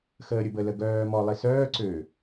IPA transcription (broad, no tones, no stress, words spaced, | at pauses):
xəːɾʲʊbə ləɡœːmɔ lˠisœː ǀø